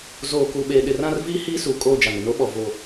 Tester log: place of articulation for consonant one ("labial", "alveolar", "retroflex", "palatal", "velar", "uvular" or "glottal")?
alveolar